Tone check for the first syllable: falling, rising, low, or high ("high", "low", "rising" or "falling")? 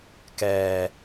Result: low